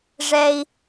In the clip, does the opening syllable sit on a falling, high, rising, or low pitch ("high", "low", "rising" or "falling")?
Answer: low